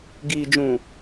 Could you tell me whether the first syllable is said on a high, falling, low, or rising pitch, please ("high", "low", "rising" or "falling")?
low